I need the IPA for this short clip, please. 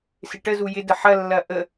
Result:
sɪʈəzu jɪdə ħɐlːɐ ʔə

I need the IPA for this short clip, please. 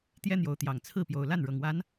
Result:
t̪jɛ˦n̪jo˨˦ʊ̯t̪jɑ˨˩ŋ t͡sʰɹ̩˥˨pjo˨˩ʊ̯ la˥˨nɻɤ˨˩ŋwa˨˦n

